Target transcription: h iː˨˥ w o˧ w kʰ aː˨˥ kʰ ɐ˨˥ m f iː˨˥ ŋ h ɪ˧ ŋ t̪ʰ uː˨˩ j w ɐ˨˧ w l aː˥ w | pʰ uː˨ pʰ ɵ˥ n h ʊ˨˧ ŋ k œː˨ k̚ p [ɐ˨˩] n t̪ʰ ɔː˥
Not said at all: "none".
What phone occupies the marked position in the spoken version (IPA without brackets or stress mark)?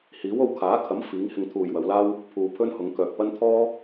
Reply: ɐ˥